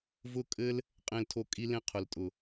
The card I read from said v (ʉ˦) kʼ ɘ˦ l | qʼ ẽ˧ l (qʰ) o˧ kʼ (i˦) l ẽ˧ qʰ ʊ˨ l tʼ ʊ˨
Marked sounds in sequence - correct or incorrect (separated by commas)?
incorrect, incorrect, incorrect